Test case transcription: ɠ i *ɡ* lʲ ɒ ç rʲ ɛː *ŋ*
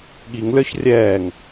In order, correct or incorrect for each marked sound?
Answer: incorrect: ŋ, correct

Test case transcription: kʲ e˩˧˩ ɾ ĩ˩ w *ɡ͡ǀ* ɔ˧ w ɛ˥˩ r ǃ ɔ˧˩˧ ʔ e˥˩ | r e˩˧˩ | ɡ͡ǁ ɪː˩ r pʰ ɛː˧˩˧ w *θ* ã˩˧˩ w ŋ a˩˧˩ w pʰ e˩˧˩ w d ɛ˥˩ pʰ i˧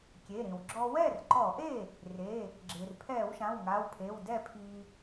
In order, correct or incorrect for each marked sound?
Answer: incorrect: ɡ͡ǁ, incorrect: ʃ

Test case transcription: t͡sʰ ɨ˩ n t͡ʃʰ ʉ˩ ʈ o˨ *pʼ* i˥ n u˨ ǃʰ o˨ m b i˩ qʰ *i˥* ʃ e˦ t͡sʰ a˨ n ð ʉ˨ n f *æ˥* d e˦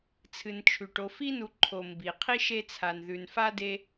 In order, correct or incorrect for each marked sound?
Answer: incorrect: f, correct, incorrect: a˥

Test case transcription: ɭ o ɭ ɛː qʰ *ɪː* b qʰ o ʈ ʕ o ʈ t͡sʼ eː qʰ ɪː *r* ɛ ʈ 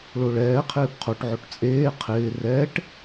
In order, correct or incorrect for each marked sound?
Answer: correct, correct

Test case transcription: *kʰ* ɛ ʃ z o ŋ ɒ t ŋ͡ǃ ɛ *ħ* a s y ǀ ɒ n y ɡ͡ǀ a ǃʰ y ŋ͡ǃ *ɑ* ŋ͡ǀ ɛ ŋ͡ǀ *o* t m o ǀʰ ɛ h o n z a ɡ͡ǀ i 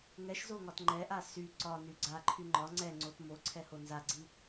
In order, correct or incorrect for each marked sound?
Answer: incorrect: ŋ, incorrect: ʔ, incorrect: ɒ, correct

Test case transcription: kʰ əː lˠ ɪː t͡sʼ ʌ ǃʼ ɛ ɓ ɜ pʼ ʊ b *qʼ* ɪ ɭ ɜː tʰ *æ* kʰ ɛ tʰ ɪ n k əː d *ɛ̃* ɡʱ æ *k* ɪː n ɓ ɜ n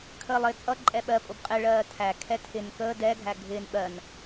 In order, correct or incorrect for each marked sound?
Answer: correct, correct, incorrect: ɛ, incorrect: ɡʱ

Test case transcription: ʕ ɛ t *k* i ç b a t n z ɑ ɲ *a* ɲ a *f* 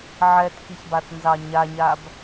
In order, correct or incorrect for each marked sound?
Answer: correct, correct, incorrect: b

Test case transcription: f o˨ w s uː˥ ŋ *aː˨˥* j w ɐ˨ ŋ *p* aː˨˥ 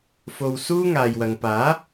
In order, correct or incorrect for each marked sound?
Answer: incorrect: aː˨, correct

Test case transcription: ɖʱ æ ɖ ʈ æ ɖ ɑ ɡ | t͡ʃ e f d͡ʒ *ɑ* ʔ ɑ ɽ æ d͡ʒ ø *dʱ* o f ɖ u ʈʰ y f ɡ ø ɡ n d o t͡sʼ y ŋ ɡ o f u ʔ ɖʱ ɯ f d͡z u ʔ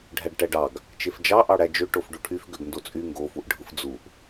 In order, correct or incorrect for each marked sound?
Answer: correct, incorrect: ʈ

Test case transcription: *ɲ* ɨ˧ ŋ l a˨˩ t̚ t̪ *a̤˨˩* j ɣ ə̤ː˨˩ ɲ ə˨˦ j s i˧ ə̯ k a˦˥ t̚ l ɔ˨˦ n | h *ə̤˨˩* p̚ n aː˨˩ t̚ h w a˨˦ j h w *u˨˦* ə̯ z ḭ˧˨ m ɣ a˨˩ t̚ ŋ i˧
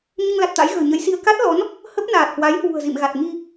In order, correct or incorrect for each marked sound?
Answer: correct, incorrect: a̰˧˥, incorrect: ə˦˥, incorrect: ṳ˨˩

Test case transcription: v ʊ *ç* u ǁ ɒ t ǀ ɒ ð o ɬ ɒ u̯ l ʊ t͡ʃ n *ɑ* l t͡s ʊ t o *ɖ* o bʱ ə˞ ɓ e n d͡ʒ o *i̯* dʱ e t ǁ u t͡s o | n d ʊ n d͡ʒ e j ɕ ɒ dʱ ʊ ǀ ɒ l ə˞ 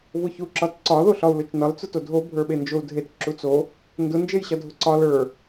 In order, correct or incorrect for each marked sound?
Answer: correct, incorrect: ɒ, incorrect: dʱ, incorrect: u̯

